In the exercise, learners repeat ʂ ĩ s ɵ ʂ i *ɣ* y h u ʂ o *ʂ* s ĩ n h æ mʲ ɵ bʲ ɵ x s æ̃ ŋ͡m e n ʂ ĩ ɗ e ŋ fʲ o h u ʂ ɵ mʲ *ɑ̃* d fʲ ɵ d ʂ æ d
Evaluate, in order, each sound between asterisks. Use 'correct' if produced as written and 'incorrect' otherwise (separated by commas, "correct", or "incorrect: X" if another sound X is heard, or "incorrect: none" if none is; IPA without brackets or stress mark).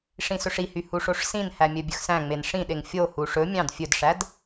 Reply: incorrect: h, correct, correct